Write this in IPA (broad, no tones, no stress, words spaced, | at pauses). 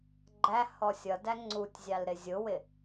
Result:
ɡ͡ǃæ hɔsʲʌdæ ŋ͡ǀutʲzʲɑl ɾɪzʲʊwɪ